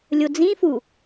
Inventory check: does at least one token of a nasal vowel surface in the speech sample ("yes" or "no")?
yes